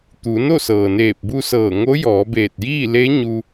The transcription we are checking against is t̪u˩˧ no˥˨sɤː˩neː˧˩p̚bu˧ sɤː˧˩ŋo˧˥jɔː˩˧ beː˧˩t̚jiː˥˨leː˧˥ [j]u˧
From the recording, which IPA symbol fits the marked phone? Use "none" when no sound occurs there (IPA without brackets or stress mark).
ɲ